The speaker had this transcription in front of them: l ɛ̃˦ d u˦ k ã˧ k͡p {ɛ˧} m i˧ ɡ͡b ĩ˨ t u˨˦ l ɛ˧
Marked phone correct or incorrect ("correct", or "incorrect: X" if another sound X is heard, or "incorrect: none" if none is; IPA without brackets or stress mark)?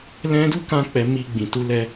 incorrect: ɛ˨